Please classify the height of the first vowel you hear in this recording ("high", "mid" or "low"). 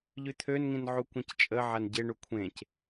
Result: high